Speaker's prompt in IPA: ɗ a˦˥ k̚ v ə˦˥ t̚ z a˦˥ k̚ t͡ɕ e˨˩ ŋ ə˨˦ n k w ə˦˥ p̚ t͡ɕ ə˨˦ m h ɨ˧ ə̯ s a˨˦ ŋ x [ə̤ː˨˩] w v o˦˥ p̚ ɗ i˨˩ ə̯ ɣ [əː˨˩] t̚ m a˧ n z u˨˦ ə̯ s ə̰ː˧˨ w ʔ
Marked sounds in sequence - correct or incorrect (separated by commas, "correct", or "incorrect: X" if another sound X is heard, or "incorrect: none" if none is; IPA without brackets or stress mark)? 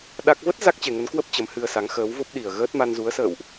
incorrect: əː˨˦, incorrect: əː˦˥